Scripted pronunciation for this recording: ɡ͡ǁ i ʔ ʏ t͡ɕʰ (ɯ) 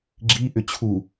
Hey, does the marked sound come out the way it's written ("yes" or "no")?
no